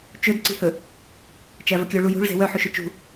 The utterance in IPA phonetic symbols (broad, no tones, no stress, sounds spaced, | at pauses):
t͡ʃ ɵ d ǀ i̤ h ɵ | t͡ʃ æ v ɵ kʲ œ ɭ u j ṳ ɭ z e̤ w œ ħ u ʃ ɵ t͡ʃ ṳ